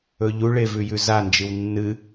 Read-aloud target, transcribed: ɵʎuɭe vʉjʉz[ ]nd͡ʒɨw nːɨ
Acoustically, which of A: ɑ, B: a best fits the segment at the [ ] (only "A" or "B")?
B